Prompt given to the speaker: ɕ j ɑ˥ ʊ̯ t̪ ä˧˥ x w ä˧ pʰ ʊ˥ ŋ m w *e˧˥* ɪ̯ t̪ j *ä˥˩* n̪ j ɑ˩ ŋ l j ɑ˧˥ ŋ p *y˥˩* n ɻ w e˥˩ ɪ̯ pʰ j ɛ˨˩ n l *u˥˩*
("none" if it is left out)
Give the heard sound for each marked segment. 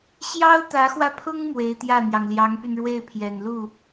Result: e˧˥, ä˥˩, y˧, u˥˩

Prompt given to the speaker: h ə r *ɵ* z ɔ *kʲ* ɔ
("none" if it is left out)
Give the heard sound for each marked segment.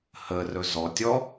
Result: ɵ, tʲ

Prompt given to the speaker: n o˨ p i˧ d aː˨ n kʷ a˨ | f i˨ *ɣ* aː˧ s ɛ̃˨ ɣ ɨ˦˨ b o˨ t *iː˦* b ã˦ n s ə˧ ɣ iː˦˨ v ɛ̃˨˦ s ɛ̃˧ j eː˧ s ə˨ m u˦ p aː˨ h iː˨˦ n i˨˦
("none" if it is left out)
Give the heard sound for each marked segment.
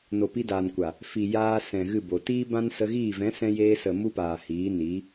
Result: j, iː˦

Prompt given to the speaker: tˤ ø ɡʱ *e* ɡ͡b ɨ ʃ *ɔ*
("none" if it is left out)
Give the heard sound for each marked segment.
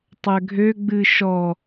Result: ø, ɔ

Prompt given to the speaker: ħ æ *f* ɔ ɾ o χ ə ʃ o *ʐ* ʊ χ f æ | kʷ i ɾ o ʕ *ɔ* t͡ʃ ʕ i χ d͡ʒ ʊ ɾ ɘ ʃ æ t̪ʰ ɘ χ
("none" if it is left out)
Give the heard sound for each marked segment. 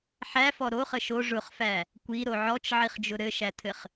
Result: f, ʐ, ɔ

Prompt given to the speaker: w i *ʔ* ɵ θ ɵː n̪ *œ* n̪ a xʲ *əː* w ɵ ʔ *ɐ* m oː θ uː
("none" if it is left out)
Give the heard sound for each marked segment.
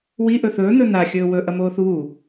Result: ʔ, ɵ, ɵː, ɐ

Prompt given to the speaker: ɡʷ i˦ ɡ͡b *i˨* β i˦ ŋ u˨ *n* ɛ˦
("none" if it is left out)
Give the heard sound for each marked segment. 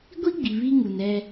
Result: i˨, n

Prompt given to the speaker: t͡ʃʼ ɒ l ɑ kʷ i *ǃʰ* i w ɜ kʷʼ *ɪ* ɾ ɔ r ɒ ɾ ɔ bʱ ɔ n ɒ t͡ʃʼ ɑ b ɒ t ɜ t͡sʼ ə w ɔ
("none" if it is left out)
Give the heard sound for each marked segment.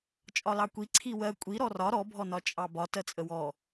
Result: ǀʰ, i

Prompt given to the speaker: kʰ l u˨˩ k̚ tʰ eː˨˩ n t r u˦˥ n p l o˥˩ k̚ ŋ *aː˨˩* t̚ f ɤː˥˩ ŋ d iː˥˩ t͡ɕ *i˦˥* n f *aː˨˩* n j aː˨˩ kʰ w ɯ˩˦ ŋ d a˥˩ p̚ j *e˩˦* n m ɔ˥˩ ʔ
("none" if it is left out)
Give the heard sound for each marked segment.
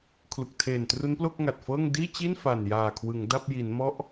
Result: a˨˩, i˥˩, a˨˩, i˩˦

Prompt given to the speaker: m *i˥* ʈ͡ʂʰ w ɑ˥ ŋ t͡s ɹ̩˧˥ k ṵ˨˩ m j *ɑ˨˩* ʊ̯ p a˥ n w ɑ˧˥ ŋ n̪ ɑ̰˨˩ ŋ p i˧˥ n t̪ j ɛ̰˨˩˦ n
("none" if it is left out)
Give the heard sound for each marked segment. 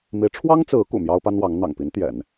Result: i˧˥, ɑ˥

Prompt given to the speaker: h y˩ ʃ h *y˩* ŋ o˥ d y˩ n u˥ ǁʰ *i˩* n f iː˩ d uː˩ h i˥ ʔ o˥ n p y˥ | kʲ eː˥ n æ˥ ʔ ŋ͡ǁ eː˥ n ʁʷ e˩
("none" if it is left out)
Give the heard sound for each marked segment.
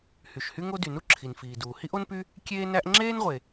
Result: y˥, i˩

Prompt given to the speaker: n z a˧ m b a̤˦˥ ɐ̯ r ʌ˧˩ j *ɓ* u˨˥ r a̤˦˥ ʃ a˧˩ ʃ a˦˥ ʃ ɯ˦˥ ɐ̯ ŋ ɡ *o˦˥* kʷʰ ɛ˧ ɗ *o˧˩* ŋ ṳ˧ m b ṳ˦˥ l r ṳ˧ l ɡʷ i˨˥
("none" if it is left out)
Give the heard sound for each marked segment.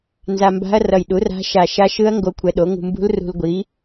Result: ɗ, o˦˥, o˨˥

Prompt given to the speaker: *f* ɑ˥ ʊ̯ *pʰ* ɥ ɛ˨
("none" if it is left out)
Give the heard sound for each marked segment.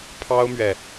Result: pʰ, m

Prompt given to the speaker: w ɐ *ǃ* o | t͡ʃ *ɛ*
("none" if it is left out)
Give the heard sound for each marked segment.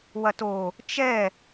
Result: t, ɛ

